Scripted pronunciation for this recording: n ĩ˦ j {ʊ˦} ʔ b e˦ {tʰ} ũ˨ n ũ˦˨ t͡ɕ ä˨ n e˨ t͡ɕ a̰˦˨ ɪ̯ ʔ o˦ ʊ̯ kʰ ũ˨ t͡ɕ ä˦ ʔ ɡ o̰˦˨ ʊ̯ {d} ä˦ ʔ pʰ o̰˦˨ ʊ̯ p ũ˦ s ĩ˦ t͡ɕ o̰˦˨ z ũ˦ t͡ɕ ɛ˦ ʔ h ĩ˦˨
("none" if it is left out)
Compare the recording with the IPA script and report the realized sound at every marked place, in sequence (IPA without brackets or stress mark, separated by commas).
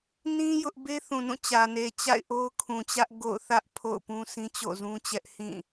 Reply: ʊ˦, θ, θ